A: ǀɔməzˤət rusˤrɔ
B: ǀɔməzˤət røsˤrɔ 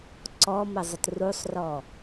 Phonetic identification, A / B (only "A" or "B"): A